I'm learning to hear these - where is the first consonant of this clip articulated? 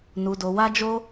tongue tip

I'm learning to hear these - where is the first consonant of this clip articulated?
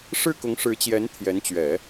retroflex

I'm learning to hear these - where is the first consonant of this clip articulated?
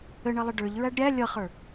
retroflex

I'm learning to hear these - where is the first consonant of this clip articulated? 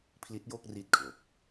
lips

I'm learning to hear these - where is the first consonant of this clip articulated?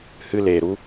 throat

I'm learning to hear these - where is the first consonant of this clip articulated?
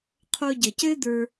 uvula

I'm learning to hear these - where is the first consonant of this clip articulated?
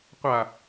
uvula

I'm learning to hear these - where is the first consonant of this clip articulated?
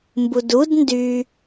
lips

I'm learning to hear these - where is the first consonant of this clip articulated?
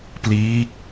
lips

